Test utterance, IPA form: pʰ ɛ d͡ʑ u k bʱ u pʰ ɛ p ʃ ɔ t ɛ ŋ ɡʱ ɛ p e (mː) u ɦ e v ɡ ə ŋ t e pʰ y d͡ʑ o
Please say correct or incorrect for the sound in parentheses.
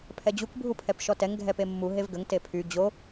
correct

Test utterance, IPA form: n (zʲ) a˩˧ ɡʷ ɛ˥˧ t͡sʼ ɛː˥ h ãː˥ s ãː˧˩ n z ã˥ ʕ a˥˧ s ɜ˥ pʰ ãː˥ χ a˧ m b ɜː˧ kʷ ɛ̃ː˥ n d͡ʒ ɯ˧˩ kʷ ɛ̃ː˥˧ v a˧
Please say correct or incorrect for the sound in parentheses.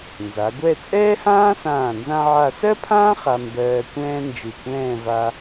incorrect: z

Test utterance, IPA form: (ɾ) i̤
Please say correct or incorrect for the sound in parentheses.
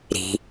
correct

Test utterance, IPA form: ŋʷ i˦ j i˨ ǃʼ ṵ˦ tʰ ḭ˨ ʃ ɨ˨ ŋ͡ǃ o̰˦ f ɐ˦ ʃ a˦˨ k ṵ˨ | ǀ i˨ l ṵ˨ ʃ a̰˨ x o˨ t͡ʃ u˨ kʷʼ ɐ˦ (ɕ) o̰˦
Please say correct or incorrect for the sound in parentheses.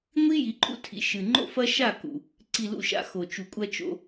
incorrect: t͡ʃ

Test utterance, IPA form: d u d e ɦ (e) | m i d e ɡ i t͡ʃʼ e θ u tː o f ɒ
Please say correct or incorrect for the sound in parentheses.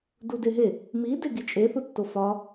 correct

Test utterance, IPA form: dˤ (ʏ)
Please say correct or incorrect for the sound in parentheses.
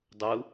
incorrect: u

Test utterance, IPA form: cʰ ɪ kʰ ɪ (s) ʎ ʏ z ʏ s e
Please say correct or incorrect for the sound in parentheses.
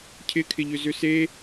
incorrect: none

